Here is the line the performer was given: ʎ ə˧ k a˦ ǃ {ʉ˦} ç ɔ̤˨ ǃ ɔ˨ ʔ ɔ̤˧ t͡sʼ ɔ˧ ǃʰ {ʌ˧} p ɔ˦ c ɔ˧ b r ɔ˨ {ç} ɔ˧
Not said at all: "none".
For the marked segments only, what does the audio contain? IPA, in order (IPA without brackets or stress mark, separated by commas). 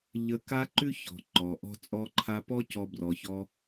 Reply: ʉ˦, a˧, ç